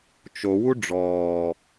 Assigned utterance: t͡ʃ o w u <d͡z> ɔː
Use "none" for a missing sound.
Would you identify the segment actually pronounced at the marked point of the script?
ɖ͡ʐ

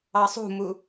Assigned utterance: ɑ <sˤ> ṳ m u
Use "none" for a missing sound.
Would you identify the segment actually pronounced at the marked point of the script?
sˤ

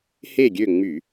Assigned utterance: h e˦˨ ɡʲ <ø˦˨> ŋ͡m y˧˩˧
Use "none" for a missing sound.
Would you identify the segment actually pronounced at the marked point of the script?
ø˦˨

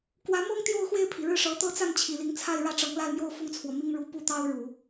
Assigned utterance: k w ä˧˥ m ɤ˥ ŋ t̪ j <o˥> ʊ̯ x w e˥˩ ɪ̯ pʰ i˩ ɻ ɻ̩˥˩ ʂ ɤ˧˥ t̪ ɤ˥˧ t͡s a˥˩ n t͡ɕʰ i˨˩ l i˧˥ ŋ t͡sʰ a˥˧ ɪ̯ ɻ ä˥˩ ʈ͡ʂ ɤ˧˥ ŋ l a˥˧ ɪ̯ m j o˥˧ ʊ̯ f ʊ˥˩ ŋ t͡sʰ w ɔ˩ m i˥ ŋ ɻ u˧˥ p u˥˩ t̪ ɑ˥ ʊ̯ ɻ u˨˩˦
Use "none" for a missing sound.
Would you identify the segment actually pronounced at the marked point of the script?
o˥˧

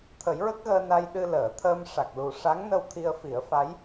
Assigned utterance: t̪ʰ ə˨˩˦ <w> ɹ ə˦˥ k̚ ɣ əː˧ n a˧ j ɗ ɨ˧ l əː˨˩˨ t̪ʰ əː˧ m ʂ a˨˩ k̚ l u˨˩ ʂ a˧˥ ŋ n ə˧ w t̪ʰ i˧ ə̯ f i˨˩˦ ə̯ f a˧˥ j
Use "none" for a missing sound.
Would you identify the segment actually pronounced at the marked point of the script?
j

